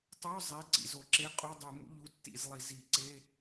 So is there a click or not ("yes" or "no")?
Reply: yes